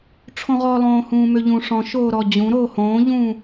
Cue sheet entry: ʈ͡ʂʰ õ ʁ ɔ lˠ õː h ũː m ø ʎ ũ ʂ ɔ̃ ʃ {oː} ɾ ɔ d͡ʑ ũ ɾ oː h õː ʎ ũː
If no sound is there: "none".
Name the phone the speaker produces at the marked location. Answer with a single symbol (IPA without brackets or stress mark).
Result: oː